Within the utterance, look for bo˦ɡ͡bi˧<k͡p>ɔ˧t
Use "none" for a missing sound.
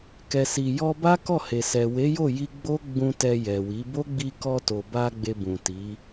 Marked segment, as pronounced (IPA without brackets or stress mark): k